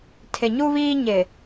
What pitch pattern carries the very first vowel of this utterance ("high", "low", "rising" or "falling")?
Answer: low